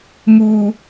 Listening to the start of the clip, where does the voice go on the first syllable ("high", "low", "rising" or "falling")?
low